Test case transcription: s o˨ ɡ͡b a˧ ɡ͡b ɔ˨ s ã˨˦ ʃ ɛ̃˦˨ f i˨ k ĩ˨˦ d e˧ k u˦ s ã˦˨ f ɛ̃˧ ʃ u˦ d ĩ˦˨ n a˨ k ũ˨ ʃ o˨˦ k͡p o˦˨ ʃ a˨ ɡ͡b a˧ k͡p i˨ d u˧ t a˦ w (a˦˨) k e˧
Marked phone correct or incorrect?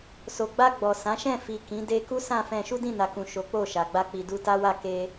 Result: correct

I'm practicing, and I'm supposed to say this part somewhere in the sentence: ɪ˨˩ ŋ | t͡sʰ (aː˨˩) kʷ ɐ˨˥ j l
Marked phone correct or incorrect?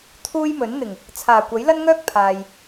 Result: correct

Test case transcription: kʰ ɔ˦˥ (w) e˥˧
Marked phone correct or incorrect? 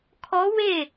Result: correct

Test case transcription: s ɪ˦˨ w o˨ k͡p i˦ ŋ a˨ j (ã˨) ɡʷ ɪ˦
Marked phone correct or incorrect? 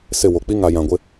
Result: correct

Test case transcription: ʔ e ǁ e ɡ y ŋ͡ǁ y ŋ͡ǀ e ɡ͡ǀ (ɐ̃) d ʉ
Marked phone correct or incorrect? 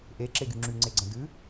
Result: correct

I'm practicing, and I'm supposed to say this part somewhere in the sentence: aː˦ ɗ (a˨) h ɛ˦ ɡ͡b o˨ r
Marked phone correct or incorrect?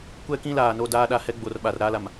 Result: correct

